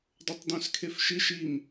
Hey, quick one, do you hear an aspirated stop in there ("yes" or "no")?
yes